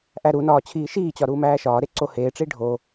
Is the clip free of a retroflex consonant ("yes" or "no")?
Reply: no